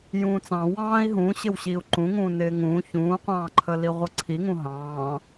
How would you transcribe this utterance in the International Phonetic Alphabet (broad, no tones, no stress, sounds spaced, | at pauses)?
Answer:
j ũː t͡s ɑ̃ w ɑ̃ː i̯ ɦ ũː ɕ ɪ w ɕ iː u̯ ǃ ũ ŋ ũː n ɪː ŋ ũː ç ũː qʷ ɑ̃ː ǃʰ ə l i ʁʷ ʌ ǀʰ i ŋ ũ ɦ ɑ̃ː